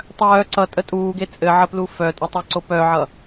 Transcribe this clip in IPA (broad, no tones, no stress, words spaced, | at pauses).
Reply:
tˤœː ǀʌtʼə tʼuːɡe t͡sʼɘʕəplu fœtʼɘtˤaǀo pœʕʌ